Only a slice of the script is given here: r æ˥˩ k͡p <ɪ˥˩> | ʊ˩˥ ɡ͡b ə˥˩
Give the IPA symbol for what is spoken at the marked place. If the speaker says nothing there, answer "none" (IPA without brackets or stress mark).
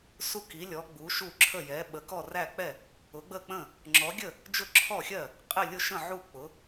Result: ɛ˥˩